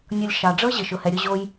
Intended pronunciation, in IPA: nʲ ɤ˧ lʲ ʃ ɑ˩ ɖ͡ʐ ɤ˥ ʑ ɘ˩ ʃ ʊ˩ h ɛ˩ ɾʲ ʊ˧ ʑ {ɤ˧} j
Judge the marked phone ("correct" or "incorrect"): incorrect